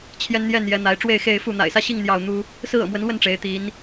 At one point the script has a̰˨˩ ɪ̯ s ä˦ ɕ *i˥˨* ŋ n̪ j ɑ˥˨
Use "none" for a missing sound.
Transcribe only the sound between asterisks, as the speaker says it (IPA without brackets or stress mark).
i˥˨